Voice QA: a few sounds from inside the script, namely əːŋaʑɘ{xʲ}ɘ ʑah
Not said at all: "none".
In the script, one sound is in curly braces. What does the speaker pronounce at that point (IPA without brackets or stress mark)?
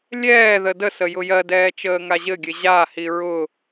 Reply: ɡʲ